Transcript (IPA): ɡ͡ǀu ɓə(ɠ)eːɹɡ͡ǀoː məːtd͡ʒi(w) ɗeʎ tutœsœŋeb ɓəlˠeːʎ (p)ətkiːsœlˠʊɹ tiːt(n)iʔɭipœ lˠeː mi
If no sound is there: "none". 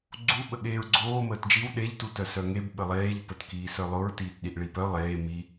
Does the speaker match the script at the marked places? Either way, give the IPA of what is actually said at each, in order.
ɠ, w, p, ɗ

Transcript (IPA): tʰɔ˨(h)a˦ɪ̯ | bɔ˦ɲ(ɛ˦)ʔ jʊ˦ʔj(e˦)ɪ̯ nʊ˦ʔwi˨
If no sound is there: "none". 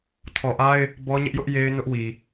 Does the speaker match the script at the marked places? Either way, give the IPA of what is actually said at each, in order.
ʔ, ɪ˦, e˦

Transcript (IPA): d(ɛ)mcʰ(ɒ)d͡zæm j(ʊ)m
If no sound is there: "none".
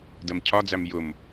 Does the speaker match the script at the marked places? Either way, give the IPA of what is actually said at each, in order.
ɜ, ɒ, ʊ

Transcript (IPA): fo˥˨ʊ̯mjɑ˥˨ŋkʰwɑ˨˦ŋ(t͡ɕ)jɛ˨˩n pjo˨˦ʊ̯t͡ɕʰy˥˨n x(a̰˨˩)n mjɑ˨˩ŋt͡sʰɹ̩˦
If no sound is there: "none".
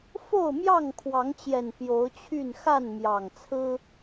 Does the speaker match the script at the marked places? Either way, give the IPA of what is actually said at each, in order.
t͡ɕ, a˥˨

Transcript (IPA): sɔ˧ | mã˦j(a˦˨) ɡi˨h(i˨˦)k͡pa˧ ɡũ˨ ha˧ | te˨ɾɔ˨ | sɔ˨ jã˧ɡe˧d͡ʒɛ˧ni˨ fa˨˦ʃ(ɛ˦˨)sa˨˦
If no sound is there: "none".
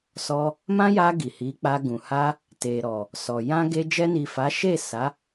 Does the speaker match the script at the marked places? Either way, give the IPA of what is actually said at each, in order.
a˧, i˨˦, e˦˨

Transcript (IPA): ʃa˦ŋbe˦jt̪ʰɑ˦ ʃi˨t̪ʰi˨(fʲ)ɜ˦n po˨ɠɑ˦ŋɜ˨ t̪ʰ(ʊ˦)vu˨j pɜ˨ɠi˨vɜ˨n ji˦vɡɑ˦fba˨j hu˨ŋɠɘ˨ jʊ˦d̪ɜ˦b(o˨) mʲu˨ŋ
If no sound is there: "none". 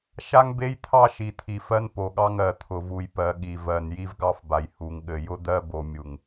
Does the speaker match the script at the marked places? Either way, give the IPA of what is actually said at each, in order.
f, ʊ˨, o˨

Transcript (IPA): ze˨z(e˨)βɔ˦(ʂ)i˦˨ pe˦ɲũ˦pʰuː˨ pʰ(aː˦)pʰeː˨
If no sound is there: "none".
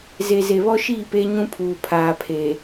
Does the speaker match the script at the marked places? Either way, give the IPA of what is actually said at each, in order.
e˨, ʃ, aː˨

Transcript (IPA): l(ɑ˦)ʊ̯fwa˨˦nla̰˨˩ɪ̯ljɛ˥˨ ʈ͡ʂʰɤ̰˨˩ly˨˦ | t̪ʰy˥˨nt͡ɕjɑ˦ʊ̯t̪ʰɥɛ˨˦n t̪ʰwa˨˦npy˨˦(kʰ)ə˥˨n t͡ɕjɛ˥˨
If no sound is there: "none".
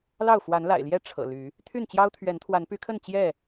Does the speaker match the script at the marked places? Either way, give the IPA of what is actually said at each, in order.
ɑ˥˨, kʰ

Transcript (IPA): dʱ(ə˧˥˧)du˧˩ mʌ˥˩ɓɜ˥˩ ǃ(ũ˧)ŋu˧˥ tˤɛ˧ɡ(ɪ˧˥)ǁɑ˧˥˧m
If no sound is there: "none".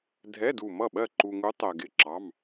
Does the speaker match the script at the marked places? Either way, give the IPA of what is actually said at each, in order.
ɛ˧˥˧, u˧, ɪ˧˥˧

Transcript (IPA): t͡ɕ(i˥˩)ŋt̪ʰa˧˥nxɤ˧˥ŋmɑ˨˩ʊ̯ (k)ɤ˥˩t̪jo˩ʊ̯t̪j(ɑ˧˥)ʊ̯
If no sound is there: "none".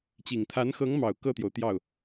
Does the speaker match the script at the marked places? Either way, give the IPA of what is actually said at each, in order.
i˨˩, k, ɑ˥˩

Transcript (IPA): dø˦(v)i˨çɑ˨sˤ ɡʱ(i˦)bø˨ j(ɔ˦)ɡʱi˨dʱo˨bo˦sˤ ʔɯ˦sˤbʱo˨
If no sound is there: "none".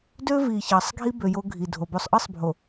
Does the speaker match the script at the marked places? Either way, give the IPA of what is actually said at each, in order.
v, i˦, o˦

